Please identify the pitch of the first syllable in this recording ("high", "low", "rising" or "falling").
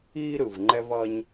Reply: high